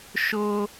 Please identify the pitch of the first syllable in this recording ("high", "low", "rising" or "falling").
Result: high